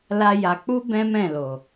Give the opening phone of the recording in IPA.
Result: l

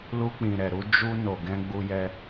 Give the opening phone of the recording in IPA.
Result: l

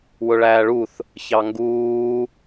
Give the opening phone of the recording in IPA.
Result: w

